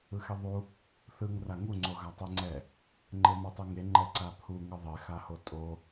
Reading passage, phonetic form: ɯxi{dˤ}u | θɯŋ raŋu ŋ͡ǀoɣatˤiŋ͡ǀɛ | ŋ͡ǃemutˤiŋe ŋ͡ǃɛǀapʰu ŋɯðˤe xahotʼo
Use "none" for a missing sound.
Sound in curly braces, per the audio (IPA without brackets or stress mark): ðˤ